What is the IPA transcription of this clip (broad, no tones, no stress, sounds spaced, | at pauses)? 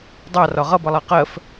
dˤ ɑ r ɒ ʁ ʌ b ʌ lˠ ɑ q ɜ f